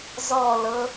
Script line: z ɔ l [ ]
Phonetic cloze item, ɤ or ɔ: ɤ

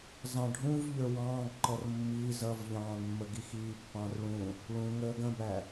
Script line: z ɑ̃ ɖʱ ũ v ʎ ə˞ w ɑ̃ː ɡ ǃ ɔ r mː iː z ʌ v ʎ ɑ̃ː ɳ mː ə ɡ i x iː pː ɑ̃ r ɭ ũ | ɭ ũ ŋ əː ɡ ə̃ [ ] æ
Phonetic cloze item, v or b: b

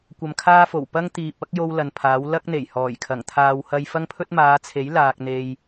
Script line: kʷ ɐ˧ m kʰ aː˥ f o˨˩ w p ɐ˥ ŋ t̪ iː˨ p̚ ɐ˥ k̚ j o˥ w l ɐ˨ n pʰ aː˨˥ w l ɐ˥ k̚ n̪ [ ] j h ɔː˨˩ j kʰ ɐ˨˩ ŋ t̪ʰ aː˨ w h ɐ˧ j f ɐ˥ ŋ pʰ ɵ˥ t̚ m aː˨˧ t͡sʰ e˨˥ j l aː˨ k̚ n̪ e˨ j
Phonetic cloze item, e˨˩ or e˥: e˨˩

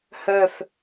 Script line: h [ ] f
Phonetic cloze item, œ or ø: œ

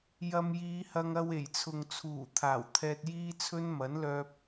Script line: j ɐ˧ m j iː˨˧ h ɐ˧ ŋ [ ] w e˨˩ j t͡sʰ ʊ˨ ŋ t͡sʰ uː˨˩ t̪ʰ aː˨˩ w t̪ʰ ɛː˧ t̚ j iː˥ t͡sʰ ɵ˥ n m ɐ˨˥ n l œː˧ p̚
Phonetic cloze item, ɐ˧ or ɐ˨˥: ɐ˧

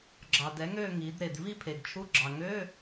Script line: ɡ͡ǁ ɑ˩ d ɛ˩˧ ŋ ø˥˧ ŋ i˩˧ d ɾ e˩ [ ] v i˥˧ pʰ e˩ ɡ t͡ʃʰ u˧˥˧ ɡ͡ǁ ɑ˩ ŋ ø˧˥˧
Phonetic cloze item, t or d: d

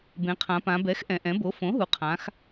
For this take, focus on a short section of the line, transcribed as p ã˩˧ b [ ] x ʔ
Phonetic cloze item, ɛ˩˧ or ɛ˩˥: ɛ˩˥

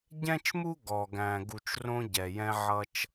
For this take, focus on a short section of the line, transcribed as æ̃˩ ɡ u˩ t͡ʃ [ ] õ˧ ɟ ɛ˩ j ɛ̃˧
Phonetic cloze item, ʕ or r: r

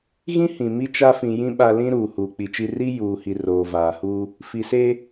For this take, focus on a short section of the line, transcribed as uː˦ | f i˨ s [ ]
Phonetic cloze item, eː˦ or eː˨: eː˦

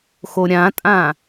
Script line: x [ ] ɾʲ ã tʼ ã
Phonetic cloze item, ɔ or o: o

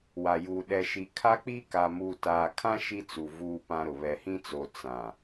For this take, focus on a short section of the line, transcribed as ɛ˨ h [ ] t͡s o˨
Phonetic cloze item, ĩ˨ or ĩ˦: ĩ˦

